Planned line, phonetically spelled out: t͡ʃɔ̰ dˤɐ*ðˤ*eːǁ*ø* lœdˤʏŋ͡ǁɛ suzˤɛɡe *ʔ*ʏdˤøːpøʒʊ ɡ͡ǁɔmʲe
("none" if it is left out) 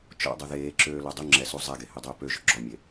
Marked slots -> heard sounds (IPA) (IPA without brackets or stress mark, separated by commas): ð, øː, h